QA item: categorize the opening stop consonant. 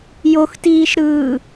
plain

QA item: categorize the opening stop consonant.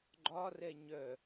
click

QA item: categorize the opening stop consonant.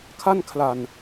aspirated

